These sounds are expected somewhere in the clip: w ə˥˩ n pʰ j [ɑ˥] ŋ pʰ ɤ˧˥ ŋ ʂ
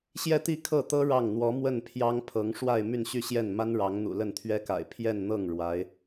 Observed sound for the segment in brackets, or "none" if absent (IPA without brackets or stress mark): ɑ˥